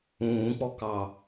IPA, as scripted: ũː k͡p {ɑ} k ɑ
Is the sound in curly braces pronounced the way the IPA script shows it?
no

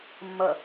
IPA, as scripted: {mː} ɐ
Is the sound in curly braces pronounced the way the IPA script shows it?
yes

